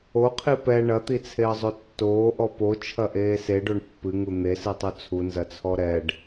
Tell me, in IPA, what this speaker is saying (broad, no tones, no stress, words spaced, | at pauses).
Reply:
oqʰi pɛ ɳɐt̪it͡sʰeə̯zˤo tːoːʔɔ pot͡ʃʰɐʔeː seɖoɳ pːɨŋu n̪esɨtˤo t͡sʰunzɐt͡sʰɔ ɾɛɖ